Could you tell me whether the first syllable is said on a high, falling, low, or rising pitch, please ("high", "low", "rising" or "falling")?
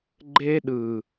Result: high